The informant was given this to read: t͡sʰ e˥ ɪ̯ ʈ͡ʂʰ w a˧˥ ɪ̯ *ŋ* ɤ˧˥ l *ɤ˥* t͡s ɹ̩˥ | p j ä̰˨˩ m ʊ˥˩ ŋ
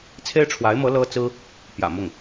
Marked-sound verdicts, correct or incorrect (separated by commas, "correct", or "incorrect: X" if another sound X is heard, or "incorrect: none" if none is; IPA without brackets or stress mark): incorrect: m, correct